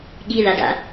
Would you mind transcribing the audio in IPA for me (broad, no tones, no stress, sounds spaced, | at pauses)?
ɠ i ð a d a̰